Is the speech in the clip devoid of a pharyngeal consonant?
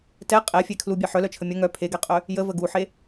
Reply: no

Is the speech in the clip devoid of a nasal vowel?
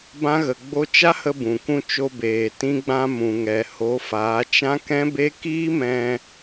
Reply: no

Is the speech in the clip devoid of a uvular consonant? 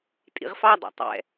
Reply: no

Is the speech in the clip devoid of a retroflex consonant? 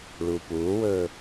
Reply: no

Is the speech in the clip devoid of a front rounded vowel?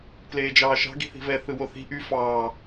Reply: no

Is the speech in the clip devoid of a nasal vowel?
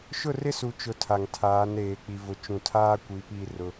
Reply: no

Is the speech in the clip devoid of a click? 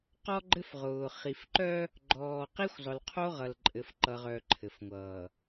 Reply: no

